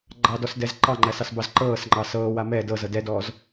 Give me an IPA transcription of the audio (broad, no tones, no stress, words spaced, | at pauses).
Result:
ɡ͡ǃɑdɔsdɛz ǃɑŋ͡ǃæsɑsbɑz ǃɤːsŋ͡ǃɑ sɤːwa mɛ dɤzɤ dɛdɔːz